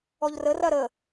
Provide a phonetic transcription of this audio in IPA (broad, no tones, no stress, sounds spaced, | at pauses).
ɔ ʎ r ə r ɐ ɾ ə